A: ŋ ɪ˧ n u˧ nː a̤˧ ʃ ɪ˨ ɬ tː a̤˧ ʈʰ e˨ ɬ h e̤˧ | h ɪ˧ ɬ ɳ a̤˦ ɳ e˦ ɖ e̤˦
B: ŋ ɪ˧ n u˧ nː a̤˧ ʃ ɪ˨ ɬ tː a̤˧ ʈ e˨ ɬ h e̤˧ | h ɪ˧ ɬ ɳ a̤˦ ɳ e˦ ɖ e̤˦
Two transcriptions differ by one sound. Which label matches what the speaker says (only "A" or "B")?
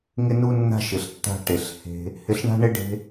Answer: B